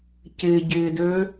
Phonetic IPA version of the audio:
c ɪː ɟ ɪː d øː

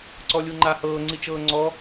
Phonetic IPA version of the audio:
ǀ ɔ lʲ u ŋ͡ǃ a h ɤː ŋ͡ǀ i t͡ʃ ɤː ŋ͡ǀ ɔ

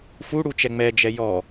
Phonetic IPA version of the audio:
f u ɽ u t͡ʃ ɛ ŋ͡m ɛ d͡ʒ ɛ j ɔ

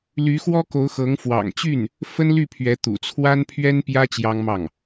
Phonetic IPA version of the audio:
l y˧˥ x w ɔ˥ k o˧˥ ʊ̯ x ɤ˧˥ ŋ f w ɑ̰˨˩ ŋ t͡ɕ y˥˩ n | f ə˥ n l y˥˩ pʰ ɥ ɛ˧˥ t̪ ṵ˨˩ t͡sʰ w a˥ n pʰ ɥ ɛ˥ n p j ä˥ t͡ɕ j ɑ˥ ŋ m ɑ˥˩ ŋ

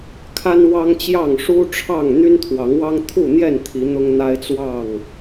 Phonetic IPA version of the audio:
kʰ a˦ n w ɑ˦ ŋ t͡ɕ j ɑ˥˨ ŋ ʂ u˦ ʈ͡ʂʰ ɑ˥˨ ŋ n̪ y˦ n t̪ʰ w ɑ˨˦ ŋ w ɑ˦ ŋ t̪ʰ u˥˨ n̪ j ɛ˥˨ n t̪ʰ i˨˦ n̪ ʊ˦ ŋ n̪ a˦ ɪ̯ t͡s w ɑ˥˨ ŋ

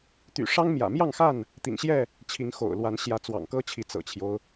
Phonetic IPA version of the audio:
t̪ y̰˨˩ ʂ ɑ˦ ŋ m j ä̰˨˩ m j ɑ˥˨ ŋ x a˥˨ n | t̪ ḭ˨˩ ŋ ɕ j ɛ˥˨ | t͡ɕʰ i˨˦ ŋ x o̰˨˩ ʊ̯ l w a˨˦ n ɕ j ä˨˦ t͡s w ɑ̰˨˩ ŋ k ɤ˦ t͡ɕʰ i˨˦ t͡s ɤ̰˨˩ t͡ɕʰ j o˦ ʊ̯

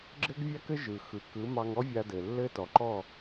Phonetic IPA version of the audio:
ɡ͡ǁ ɘ˥ ɡ vʲ a˥ k ɘ˥ ʒ ɯ˩ x ɯ˩ k ɯ˩˥ m ɑ˧ ŋ ɔ˥ vʲ a˧ d ɘ˩ lː ɘ˥ t ɔ˩ ǃ ɔ˥˩

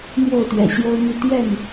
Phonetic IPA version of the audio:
n̪ j o˥˨ ʊ̯ t̪ ɥ ɛ̰˨˩ ɕ j o˦ ʊ̯ n̪ y˥˨ t̪ j ɛ˥˨ n

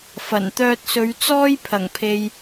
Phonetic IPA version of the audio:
f ɐ˨˩ n t̪ œː˧ t̚ s ɵ˨˧ ɥ t͡s ɔː˥ j pʰ ɐ˨˩ ŋ pʰ e˨ j

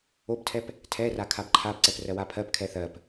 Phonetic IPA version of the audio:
o b tʰ ɛ p | tʰ ɛ r a kʰ a b ǃʰ a b ǀ ɛ p r ɜ w a pʰ ɜ p kʰ ɛ θ ɜ p

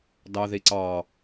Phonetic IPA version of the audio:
d ɑ ð i ǀ ɑ

